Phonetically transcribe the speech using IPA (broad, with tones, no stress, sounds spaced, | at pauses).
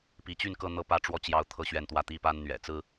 p i˨˦ t͡ɕ y˥˨ n k ɤ˥˨ n̪ ɤ˥˨ p ä˥˨ ʈ͡ʂ w ɔ˥˨ t͡ɕ j ɑ˦ ʊ̯ t̪ʰ ɤ˥˨ ɕ ɥ ɛ˥˨ n t̪ w ä˦ t̪ i˦ p a˦ n n̪ ɥ ɛ̰˨˩ t͡s ɹ̩˦